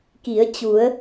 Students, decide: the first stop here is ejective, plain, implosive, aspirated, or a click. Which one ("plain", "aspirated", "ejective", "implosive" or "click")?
plain